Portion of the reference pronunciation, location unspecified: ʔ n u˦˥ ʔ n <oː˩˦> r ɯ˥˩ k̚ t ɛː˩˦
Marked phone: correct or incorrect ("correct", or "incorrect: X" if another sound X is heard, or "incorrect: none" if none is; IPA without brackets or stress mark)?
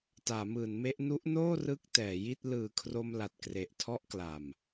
incorrect: oː˥˩